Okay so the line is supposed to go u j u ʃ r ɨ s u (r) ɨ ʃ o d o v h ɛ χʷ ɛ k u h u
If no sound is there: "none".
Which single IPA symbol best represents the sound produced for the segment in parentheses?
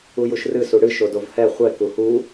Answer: ɽ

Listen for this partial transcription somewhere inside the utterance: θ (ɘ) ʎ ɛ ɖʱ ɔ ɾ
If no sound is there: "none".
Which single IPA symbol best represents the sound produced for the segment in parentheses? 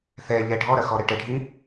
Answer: ɛ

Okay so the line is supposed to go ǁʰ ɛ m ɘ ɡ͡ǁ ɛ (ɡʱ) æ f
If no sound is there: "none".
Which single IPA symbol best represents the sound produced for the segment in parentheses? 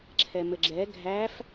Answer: ɡʱ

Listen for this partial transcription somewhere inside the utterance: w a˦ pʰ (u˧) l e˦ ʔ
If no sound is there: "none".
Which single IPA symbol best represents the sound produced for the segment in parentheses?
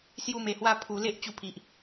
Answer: u˧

